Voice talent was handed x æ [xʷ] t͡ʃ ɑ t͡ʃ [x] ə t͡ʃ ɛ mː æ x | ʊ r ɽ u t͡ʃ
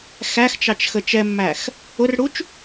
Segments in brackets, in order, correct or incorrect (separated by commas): incorrect, correct